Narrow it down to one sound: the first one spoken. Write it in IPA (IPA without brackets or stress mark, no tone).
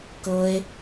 k